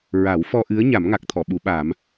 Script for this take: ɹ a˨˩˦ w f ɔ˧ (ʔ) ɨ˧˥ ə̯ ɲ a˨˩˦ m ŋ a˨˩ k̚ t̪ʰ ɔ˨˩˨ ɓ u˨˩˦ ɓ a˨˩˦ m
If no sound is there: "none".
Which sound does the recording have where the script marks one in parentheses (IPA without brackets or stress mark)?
ʔ